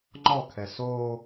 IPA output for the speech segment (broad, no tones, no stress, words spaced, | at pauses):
ŋ͡ǃɔkʰɛs o